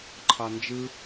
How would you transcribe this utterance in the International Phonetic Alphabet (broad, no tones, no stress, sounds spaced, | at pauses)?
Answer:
ǃʰ ɑ n d͡ʒ ɯ